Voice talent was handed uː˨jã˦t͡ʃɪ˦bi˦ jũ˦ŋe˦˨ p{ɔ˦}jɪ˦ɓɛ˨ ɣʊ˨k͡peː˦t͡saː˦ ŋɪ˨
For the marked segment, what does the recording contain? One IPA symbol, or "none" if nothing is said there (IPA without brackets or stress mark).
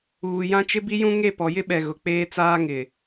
ɔ˨